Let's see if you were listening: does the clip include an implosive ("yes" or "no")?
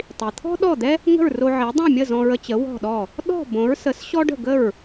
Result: yes